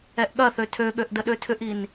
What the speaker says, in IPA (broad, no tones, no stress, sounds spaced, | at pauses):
ɛ ʔ ɠ ɐ θ ø tʰ ø ɠ ø ʔ d ə ɗ ø tʰ ʏ ʔ i n